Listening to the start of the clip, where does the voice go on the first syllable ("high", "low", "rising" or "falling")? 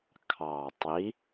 low